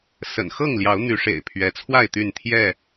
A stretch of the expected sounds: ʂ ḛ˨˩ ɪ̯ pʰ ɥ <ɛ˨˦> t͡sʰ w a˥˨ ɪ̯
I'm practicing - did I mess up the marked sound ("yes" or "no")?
no